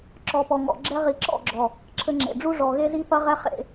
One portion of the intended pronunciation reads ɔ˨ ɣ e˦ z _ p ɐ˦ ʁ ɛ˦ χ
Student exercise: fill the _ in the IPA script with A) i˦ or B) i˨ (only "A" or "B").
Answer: A